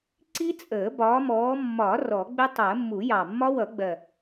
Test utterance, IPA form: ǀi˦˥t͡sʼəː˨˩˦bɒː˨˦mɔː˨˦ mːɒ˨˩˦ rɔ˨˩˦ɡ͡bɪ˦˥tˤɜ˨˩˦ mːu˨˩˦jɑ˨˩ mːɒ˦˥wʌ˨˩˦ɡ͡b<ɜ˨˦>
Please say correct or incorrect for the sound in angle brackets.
incorrect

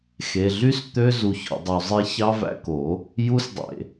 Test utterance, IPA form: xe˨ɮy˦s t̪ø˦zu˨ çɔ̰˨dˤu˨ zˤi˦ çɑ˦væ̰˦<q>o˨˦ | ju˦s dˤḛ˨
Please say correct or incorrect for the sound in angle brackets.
incorrect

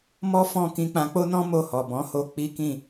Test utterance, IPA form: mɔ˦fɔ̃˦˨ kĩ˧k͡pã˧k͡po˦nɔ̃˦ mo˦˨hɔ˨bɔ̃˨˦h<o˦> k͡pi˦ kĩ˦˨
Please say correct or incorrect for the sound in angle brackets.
correct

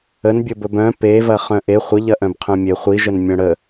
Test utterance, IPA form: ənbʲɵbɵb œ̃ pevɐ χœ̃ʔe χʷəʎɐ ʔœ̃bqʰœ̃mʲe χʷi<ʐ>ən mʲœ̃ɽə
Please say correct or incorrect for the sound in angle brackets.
incorrect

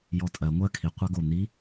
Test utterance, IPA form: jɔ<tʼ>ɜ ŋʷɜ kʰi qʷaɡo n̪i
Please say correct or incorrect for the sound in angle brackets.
correct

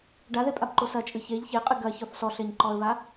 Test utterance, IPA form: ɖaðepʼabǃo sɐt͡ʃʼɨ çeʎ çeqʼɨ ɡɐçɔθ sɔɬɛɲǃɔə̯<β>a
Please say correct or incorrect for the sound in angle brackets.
correct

